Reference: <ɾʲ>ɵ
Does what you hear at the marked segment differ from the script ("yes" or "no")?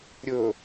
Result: no